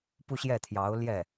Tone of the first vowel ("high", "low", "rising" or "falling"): falling